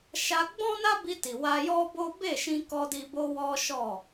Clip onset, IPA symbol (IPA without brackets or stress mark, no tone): ʃ